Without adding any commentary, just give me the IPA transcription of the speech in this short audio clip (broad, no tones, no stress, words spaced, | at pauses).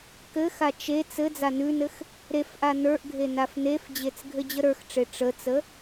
kɘxa t͡ʃe t͡sɘ d͡zanʉnɘx | ɾefʔa nə˞ʔɡʱe nafnefd͡ʑet͡s ɡʱɘd͡ʑəɾə˞xʈ͡ʂe ʈ͡ʂət͡sə